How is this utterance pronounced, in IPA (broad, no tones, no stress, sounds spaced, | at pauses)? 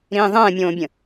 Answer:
ɾ ĩː ðˤ ɛ̃ː mʲ õː bʲ ə̃